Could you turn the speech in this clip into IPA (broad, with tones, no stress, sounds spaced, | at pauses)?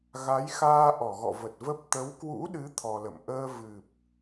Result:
ɣ a˨˦ j x aː˧ ʔ ɔ˧˩ ɣ ɔ̰˧˨ v ə˨˩ t̚ v ə˦˥ p̚ t̪ ə˨˦ w k w ṵ˧˥ ɗ ɨ˨˦ t̪ʰ ɔ˧ l ə̰˧˨ m ʔ əː˧ v ɨ˨˩ p̚